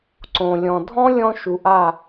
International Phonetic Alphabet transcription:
ǀõ˨lʲɔ̃˨dʱɔ̃˦ lʲɔ̃˧ ʃu˨ʔa˦˨

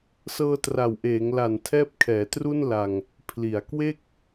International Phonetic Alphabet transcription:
sɤː˧tra˨˩wʔeː˩˦ŋla˨˩n tʰɛː˦˥p̚kʰɛː˩˦tru˥˩n la˧ŋ | pʰli˩˦a̯kwe˥˩k̚

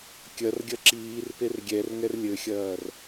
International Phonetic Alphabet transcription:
kʲɐrɡʲɐ ǁiːrper ɡʲɛrŋɛr lʲɘxʲɐːr

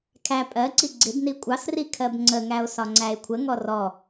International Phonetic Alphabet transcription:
kʰæ pʼɜǀi ɡ͡ǀɪbni kʷʼɑsri kʰɜbŋ͡ǀəŋæo̯ sɒŋ͡ǀæe̯kʷʰəŋɔ rɔ

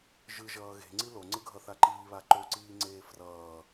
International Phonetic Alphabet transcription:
ʒɯʒʌː ɣe̤ŋ͡ǀi loŋ͡ǀɯɡʱʌθa ǃiːβa ǃoǀiːŋ͡ǀeː frʌː

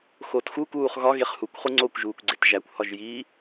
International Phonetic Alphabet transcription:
xoːtxu kuːχɣɒ ɣeχhukʷ χuŋ͡ǀokʷʒuːkʷɡ͡ǀet ʒækʷhɒʒjiː

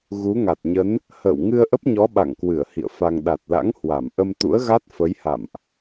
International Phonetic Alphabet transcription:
ɣu˨˦ŋa˨˩t̚ɲə˨˦n | hə̰ː˧˨wŋɨ˧ə̯ ʔə˦˥p̚ɲɔ˨˦ ɓa̰˧˨ŋ kwɨ˧˩ə̯ hḭ˧˨ə̯fa˧ŋ ɗa˨˩t̚la̰˧˥ŋ hwa˧˩m ʔə˧mt̪ṵ˧˥ə̯ɣa˦˥t̚ fə˨˦jha̰˧˨mʔ

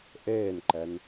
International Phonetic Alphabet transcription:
ʔeːnǃɛn

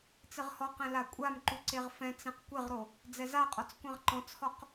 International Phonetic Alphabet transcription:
t͡sɪʁhɔqɛ̃ lakʷʼamǃu ǀeʁfɛ̃t͡sẽq kʷeʁɾo | d͡zɛzaqʼɔt͡s kʷɛ̃ʁǃɔ̃t͡shɔq

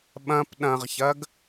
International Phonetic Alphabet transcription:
ɓɐ̃p ɗɐ̃ʁçɐɡ

